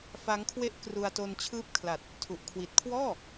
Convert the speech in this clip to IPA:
f a˦˥ ŋ kʰ w e˥˩ ʔ k r u˧ a̯ t o˧ n t͡ɕʰ ɯː˦˥ p̚ kʰ l a˨˩ t̚ | tʰ u˨˩ ʔ kʰ w i˨˩ t̚ kʰ w ɔː˥˩

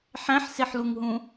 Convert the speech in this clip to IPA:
ħ æ̃ ħ s e ħ l u ŋ ɦ ũ

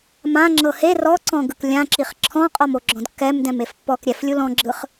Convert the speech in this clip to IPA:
m ã ŋ͡ǁ ɤ h e r ɔ ǀ ɔ̃ ɡ ɯ k lʲ ã ǁ i χ ǁʰ ɔ̃ qʼ ɔ m o ɡ͡ǁ ɔ̃ d kː ɛ m d ɛ̃ m e f pː ɔ k ɾʲ ɛ f lʲ u l ɔ̃ ɡ͡ǁ ɯ χ

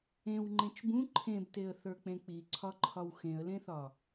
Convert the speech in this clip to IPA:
ẽ w ŋ͡ǃ ẽ t͡ʃ b ũ ǃʰ ẽ b t e ə̯ θ ə˞ k͡p ẽ k͡p i ǀʰ ɒ ǃʰ ɒ w x ẽ ə̯ l ẽ θ ɒ

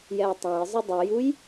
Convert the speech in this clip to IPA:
j ɛ ʊ̯ tˤ ã ɪ̯ zˤ ɯ dˤ u j u j

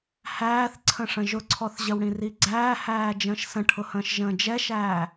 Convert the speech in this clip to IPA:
h æː θ ǀʰ ə̃ ʂ ə̃ ʒ ʊ ǀʰ ɔ θ ʑ ə w ɽ ĩ r i ɡ͡ǀ æː h æː d͡ʒ ə̃ː ʃ s ə̃ ʈʰ ʊ h ə̃ː ʃ ʒ ə̃ː d͡ʒ ɛ ʃ æː

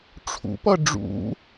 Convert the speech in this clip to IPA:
ʈ͡ʂʰ ṵ p ʌ ɖ͡ʐ ṵ

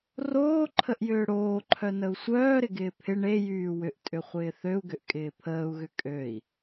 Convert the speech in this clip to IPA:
r oː ǃʰ ə ʔ j ʏː ɽ oː ǃʰ œ n ə u̯ sʷ œː ɾ ɪ ɡ ɪː pʰ ɪ ɳ e j yː w ʏ ʔ tʼ ʏ χʷ ɪː θ ø u̯ ɡ ʏ ʔ kʼ ɪː pʰ əː u̯ ɣ ʏ kʼ ø i̯

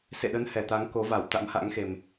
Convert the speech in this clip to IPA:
s ḛ˧˨ ɗ ə˨˦ n h ɛ˨˩ t̪ a˨˦ ŋ k o˨˦ v a˧˩ w t̪ a̰˧˥ m h a̰˧˥ ŋ x e˨˩ m

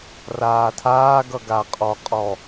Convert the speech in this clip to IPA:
r aː tʰ aː ɡ ʌ ɡ a qʼ ɔ qʼ ɔ

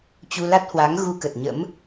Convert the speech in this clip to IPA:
t͡ɕ u˧ l a˦˥ t̚ h w a˨˦ ŋ ɣ u˧ k ə˨˩ t̚ ɲ ə̰˧˥ m

